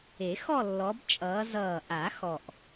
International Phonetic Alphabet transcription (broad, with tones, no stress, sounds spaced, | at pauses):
e˨˩˦ x ɔ˥˧ lː ɔ˨˦ b t͡ʃʼ ʌː˨˦ z ʌː˨˩ ʔ a˨˩˦ x ɔ˨˩ ʔ